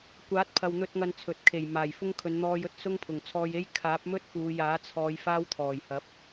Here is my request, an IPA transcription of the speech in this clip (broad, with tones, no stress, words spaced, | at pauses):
kʷaː˨˥t̚pʰɐ˨wn̪ɵ˧t̚ ŋɐ˧nt͡sʰɵ˨t̚kʰe˨˩j maː˨˩jfʊ˥ŋ kʰɵ˨˧nn̪ɔː˧jɵ˥t̚sʊ˥ŋ pʰʊ˨˩ŋt͡sʰɔː˧je˥j kʰaː˨˥p̚mɵ˥t̚ puː˨˧jaː˨˥t͡sʰɔː˨˧j faː˥wt̪ʰɔː˨˩jhɐ˨˥p̚